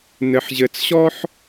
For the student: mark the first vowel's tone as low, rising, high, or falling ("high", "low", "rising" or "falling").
low